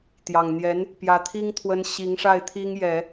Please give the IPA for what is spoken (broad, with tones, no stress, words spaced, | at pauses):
t̪jɑ˨˩ŋn̪jɛ˧˥n | pjä˧˥t̪ʰi˥ŋ t̪ʰwə˥n ɕi˧˥ŋʂa˥˩ɪ̯ t̪ʰi˥ŋjɛ˨˩˦